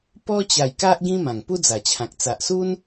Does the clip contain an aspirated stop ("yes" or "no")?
yes